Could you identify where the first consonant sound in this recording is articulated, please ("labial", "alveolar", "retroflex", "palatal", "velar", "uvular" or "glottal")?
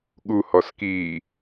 velar